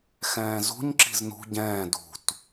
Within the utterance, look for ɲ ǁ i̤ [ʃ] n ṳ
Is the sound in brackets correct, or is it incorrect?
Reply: incorrect